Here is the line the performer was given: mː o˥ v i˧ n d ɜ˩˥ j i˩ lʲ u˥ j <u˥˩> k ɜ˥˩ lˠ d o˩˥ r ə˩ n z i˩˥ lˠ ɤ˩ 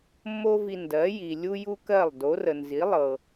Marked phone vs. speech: incorrect: u˥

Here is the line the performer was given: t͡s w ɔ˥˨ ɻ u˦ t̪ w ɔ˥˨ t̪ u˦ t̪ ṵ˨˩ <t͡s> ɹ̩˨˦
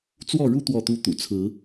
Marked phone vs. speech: incorrect: t͡sʰ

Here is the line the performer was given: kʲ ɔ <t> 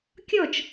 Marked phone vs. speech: incorrect: t͡ʃ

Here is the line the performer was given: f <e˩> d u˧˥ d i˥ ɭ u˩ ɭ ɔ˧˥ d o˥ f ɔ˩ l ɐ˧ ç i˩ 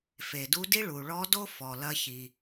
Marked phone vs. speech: correct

